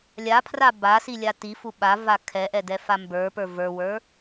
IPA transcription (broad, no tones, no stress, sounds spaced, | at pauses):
lʲ a pʰ r a b a s i lʲ a t i f u ɓ a v a kʰ ɛ ʔ ɛ d ɛ f a m b ə˞ p ə˞ v ə˞ w ə˞